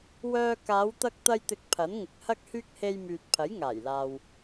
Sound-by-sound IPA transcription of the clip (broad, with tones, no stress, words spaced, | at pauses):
wœː˧ kaː˨˧wt̪ɐ˧k̚ t̪ɐ˧jt̪ɪ˨˥k̚ pʰɐ˨˥nŋɪ˨k̚hɐ˥k̚hyː˥k̚ he˧jmyː˨t̚ pʰɐ˨˥jŋaː˨˩jlaː˨w